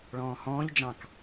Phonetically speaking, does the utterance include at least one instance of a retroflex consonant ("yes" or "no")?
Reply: yes